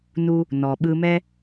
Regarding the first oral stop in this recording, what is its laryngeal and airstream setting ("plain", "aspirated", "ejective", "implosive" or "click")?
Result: implosive